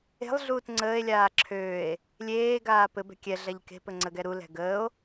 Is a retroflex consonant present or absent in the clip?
absent